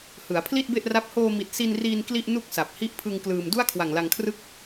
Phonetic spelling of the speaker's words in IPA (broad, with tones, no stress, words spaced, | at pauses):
hɯ˩˦a̯pʰli˥˩t̚be˥˩ʔra˦˥p̚ hoː˧mi˨˩t̚ si˧nriː˧n kli˥˩ʔ nu˥˩k̚sa˨˩p̚ hi˦˥ʔpʰɯ˧ŋ klɯː˧m du˥˩a̯kʰwa˨˩ŋla˧ŋkʰrɯ˥˩k̚